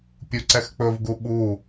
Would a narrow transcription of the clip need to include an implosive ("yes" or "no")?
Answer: yes